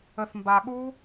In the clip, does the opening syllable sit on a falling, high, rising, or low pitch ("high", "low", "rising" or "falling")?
low